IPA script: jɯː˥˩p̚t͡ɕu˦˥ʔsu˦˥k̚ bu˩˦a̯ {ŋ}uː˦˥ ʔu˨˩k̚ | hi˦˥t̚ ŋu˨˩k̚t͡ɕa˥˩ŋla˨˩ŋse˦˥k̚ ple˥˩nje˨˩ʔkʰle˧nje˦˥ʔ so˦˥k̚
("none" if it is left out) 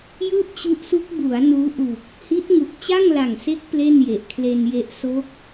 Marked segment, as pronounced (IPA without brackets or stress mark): n